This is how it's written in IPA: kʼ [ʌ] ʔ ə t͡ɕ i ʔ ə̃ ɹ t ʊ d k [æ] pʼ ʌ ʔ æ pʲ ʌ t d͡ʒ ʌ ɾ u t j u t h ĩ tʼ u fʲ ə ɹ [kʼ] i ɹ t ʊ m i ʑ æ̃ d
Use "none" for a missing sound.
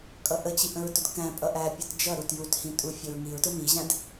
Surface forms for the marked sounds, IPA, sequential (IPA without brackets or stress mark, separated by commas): ʌ, æ̃, ŋ